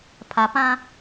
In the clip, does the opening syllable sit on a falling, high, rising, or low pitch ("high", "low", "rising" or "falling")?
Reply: low